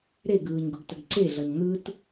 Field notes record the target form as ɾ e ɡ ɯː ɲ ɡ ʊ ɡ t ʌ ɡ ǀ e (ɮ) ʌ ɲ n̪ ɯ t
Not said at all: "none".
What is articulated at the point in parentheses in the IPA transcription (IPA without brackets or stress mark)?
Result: ɮ